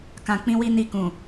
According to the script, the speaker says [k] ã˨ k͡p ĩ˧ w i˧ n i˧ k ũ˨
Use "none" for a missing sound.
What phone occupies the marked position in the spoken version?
k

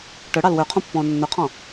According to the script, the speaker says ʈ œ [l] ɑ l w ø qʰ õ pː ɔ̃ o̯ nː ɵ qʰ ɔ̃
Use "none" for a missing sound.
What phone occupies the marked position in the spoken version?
ɽ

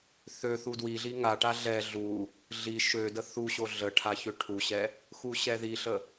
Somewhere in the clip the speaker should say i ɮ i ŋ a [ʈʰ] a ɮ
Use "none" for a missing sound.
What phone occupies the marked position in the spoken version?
ʈ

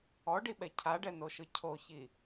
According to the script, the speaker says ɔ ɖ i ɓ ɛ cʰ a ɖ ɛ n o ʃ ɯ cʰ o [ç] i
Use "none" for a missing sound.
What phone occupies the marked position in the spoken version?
ç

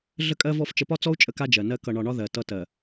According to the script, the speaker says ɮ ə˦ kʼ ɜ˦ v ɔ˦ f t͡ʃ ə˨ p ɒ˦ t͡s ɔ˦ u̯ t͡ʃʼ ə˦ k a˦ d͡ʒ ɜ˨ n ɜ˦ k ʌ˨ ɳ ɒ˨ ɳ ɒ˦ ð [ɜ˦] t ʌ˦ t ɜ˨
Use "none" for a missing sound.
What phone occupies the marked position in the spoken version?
ɜ˨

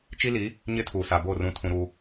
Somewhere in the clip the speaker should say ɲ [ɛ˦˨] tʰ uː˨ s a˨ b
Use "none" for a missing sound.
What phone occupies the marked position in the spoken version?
ɪ˦˨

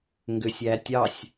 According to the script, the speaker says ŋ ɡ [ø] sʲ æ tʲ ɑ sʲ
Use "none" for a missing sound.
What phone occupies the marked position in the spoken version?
ø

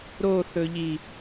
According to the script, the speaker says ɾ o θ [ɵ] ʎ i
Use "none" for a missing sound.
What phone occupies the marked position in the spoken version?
ɵ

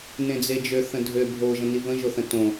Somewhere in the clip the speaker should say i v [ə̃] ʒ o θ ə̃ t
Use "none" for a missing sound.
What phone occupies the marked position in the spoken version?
ə̃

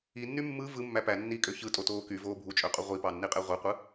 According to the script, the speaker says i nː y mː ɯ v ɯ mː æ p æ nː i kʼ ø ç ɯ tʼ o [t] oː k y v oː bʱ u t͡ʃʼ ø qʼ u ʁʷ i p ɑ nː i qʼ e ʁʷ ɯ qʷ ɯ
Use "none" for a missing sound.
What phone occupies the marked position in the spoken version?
t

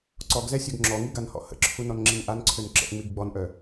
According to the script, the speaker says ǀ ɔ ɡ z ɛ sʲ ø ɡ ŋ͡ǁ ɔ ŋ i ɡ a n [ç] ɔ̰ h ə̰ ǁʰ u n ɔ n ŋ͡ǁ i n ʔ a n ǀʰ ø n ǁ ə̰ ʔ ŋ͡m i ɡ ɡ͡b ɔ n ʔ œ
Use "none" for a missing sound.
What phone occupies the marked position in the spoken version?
h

